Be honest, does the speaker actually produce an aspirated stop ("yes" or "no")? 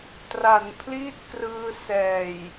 yes